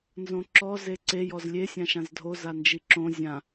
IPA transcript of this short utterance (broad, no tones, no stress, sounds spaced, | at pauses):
n z õ ǁ ɔ z e ǀ e j ɔ z lʲ e sʲ ã ʃ ã z dʱ o z a n d͡ʒ i ǁ õ zʲ ã